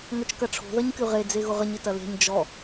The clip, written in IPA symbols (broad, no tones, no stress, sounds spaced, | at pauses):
ŋ œ t͡ʃ k ɐ ʈ͡ʂʰ o̤ ð ɐ ɲ k y ʁ e d͡z e ɣ ʊ ʁ ə ɲ ɪ t ɐ l e̤ ɲ d͡ʒ ɔ